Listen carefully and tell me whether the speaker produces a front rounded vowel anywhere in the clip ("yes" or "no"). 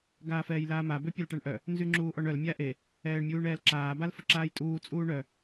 yes